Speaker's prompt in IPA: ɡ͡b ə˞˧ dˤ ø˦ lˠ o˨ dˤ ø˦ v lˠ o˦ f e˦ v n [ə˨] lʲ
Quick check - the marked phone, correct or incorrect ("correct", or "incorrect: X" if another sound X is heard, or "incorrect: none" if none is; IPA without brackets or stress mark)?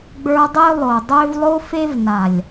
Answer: incorrect: a˨